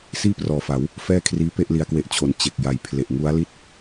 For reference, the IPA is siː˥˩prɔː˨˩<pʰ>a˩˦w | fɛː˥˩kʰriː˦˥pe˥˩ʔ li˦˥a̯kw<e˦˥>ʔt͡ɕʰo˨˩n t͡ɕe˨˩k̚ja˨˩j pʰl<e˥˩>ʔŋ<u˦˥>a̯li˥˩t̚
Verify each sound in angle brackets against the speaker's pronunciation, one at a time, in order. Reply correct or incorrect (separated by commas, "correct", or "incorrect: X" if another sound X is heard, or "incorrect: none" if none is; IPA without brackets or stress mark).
incorrect: f, correct, incorrect: e˨˩, correct